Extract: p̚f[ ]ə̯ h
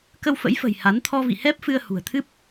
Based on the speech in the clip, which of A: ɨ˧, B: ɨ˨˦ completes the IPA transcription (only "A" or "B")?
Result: A